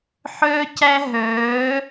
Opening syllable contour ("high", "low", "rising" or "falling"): high